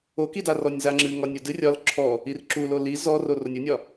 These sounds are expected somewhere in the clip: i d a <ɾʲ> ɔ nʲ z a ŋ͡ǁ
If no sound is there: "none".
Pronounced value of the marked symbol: r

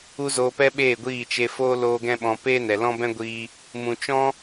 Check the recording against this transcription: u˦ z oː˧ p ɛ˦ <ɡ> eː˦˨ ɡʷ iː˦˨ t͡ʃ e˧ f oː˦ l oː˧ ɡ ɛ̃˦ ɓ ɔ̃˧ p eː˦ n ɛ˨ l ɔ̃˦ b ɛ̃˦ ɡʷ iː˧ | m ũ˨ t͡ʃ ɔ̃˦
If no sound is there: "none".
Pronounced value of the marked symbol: ɓ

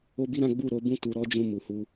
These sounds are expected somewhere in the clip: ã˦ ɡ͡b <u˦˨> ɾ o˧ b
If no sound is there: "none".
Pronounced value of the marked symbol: u˦˨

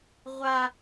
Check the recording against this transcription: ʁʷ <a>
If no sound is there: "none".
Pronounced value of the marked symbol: a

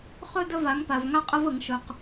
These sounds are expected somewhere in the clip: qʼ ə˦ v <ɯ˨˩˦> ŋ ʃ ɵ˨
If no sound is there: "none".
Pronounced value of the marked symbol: ə˨˩˦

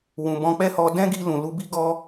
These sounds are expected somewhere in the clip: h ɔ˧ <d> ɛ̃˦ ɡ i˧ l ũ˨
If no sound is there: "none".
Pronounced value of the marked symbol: d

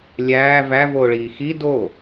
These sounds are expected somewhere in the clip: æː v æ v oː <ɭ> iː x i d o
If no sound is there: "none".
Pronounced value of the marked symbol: ɭ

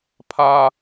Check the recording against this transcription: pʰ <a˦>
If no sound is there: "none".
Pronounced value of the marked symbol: a˦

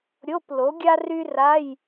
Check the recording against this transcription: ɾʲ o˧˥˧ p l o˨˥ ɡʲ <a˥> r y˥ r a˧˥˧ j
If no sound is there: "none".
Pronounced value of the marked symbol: a˥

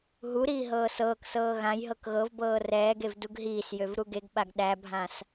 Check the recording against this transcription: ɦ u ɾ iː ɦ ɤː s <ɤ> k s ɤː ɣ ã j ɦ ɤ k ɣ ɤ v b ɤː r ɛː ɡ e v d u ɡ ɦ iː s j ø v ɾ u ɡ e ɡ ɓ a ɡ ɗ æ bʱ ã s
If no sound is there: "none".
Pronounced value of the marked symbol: ɤː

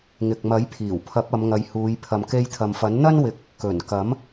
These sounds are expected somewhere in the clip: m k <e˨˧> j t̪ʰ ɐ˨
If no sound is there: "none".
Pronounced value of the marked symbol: e˧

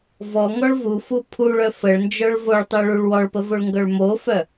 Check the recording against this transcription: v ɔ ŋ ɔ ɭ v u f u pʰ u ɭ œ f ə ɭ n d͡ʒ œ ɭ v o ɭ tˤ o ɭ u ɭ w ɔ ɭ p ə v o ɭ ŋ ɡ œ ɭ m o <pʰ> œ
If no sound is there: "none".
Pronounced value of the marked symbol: f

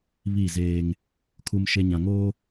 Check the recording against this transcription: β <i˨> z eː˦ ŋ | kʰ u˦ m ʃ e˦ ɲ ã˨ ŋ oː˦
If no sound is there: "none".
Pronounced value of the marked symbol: i˦˨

